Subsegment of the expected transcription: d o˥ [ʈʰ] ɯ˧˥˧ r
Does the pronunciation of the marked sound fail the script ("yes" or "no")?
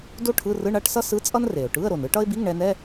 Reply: no